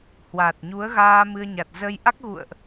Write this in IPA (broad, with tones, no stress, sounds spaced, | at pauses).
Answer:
h w aː˨˩ t̚ ɲ u˨˦ ə̯ ɣ aː˧ m ɨ˧ ə̯ ɲ a˨˩ t̚ z ə˧ j ʔ a˦˥ k̚ ɣ ṵ˧˨ ə̯ ʔ